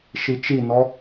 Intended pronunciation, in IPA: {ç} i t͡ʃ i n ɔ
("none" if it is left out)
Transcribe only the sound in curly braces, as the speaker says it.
ʃ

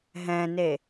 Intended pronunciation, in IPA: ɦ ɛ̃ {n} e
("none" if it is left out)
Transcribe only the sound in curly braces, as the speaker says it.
n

